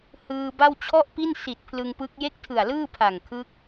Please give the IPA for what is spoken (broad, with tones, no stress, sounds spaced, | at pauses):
h ɯː˧ b a˥˩ w t͡ɕʰ ɔ˥˩ ʔ p i˥˩ n s i˨˩ t̚ pʰ l ɯ˧ ŋ p ɯ˦˥ k̚ j e˥˩ k̚ tʰ ɯ˨˩ a̯ l ɯː˥˩ pʰ a˨˩ ŋ kʰ ɯ˦˥ k̚